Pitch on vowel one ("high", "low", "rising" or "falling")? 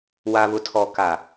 low